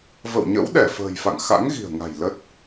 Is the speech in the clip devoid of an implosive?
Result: no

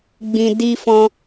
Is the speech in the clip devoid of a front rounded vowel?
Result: yes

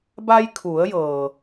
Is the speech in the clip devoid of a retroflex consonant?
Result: yes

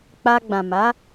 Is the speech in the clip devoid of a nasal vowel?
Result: no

